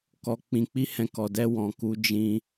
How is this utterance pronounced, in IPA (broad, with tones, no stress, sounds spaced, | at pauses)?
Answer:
k ɔ˨ k͡p ĩ˨ k͡p i˧ h ɛ̃˨ k ɔ˧ d ɛ˧ w ɔ̃˨ k u˨˦ d͡ʒ ĩ˦